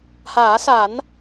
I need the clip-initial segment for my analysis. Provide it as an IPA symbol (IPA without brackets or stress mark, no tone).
h